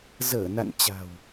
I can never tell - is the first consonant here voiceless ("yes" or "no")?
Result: no